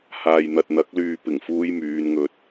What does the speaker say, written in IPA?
haː˨jn̪ɐ˨t̚n̪ɐ˨˥k̚ lyː˨pɪ˨˩ŋfuː˧j myː˨˧nŋɵ˧t̚

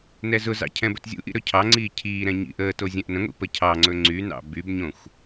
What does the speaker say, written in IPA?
nɛzʊzɑ̰ cʰɛ̃bɵtzʲṵʔḭ ɾɵcʰɑŋ͡ǀiː cʰiːɾɛ̃ ɲḭʔəːto zʲɛ̃ʔnə̃ŋʷḭ pəcʰɑŋ͡ǀɵ ŋ͡ǀynɑ̰ bybɲõxʷ

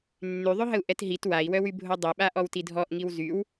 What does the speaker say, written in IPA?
nːyðˤøɦəu̯ ʔɛtɦit wai̯wœwybʱo dˤiɓaʔɔw tidʱɔʔŋiw zyw

